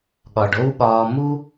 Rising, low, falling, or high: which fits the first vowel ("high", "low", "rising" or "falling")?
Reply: low